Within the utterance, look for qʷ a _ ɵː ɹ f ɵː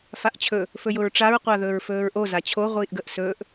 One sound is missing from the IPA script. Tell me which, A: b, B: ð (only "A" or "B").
B